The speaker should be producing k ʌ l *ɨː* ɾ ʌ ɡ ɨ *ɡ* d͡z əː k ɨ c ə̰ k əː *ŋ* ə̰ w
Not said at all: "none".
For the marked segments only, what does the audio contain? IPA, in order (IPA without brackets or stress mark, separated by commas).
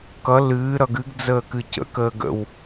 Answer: ɨː, ɡ, ɡ